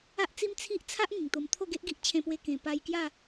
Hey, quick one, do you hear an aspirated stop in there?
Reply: yes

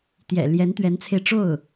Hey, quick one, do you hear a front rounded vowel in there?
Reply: no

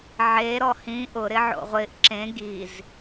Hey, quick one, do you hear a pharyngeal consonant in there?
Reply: yes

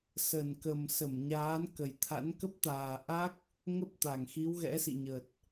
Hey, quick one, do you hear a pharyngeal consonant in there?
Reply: no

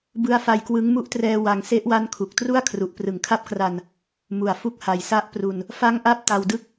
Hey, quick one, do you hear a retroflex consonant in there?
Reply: no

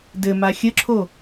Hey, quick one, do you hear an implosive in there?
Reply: no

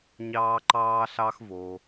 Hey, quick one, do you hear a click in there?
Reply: yes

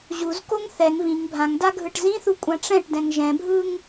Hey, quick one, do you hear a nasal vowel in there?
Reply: yes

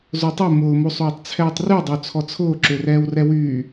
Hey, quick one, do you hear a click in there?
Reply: yes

